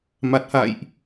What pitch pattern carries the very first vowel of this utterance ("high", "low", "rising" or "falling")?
low